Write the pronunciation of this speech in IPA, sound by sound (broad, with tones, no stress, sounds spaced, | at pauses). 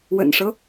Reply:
w ə̰˨˩ n ʂ ɤ˦